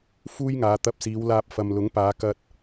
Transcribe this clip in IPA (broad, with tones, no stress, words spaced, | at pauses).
fuː˥jŋaː˨˧ t̪ɐ˧p̚siː˨˧wlaː˧p̚ fɐ˨mlʊ˨˥ŋpaː˨˧ kɐ˧t̚